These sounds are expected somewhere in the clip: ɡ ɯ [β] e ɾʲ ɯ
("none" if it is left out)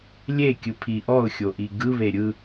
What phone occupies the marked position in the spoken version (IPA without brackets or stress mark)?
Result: β